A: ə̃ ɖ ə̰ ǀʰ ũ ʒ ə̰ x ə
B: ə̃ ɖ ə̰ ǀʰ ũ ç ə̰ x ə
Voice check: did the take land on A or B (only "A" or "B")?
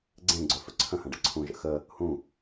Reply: A